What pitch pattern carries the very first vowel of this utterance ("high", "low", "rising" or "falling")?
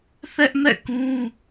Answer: high